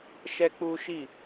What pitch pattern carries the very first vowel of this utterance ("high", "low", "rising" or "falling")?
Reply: high